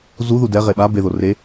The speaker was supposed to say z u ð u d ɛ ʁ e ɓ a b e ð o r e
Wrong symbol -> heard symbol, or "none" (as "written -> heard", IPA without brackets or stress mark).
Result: none